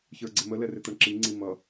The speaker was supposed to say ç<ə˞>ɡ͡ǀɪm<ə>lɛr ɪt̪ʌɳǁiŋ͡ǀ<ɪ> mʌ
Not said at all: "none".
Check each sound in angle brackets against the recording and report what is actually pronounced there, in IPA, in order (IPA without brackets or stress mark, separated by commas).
ə˞, ə, i